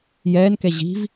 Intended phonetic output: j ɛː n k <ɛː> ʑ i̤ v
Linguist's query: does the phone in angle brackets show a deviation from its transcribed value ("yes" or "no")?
yes